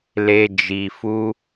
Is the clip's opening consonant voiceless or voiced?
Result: voiced